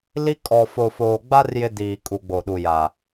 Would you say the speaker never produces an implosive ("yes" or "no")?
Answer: no